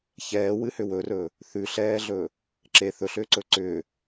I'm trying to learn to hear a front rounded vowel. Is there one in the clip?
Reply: yes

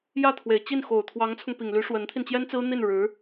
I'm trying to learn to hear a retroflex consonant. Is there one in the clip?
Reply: yes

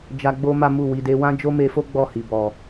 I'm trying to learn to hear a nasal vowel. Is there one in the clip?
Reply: yes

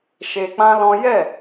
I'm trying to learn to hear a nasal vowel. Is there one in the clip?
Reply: yes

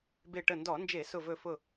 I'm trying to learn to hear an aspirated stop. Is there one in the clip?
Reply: no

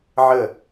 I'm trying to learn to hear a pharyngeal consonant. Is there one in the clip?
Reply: yes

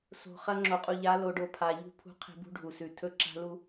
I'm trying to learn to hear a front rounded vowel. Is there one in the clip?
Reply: no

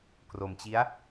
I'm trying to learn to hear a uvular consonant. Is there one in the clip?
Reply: no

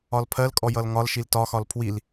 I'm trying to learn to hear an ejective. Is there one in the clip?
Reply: yes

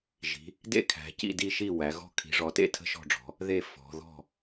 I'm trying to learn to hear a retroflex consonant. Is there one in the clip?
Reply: yes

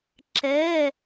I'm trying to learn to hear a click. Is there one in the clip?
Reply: yes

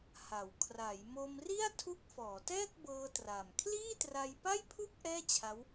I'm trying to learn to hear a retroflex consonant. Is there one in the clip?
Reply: no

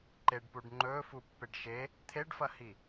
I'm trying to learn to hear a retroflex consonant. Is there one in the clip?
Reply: yes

